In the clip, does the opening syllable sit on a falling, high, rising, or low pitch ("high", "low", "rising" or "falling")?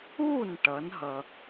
falling